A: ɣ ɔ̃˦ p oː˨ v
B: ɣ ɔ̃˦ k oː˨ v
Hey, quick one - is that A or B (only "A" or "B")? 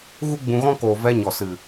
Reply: B